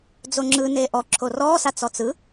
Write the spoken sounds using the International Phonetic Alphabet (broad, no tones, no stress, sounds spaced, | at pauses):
d͡z o ŋ͡ǁ ɯ n eː ʔ ɔ ǁʰ o r ɔː s a t͡s ɔ t͡s ɯ